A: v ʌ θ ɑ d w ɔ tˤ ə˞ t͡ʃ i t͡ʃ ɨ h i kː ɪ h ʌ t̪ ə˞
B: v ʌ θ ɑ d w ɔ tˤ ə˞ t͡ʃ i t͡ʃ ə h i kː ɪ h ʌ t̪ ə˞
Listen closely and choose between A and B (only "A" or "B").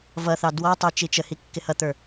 B